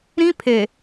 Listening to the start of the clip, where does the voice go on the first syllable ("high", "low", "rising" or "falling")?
high